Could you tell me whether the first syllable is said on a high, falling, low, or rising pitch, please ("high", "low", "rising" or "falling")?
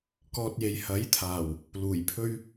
low